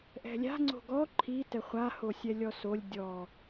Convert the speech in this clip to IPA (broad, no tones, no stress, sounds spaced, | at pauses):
ʔ ɛ̤ lʲ a̤ ŋ͡ǀ o̤ ɡ ɔ ǃʰ i t ɛ χʷ a h o sʲ ɛ lʲ ɔ s o lʲ dʲ ɔ